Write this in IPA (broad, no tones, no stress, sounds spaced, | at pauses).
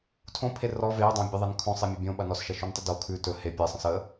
tʰ õ pʰ e r ɔ v e u̯ dˤ õ bʲ ə ðˤ e n kʰ õ sˤ e mʲ ɐ bʲ õ ɓ ɐ n ɔ s ʃ ɐ ʃ o n tˤ ɵ d o kʰ ʉ t ɵ h e pʲ e sˤ ə̃ s ə